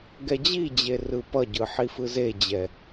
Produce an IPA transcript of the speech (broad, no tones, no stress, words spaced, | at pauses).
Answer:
ɡɛd͡ʑid͡ʑe rɯpʌɟɯ ħifɯzed͡ʑɛ